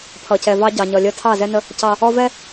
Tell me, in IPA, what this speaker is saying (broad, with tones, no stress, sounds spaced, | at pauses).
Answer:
pʰ ʌ˨ c ɛ˨ v ɑ˦ ɟ ɑ˨ ɲ ʌ˨ lʲ ə˦ tʰ ɑ˦˨ z ɛ˦ n ə˦ | c ɑ˦ | ɔ˦ v ɛ˦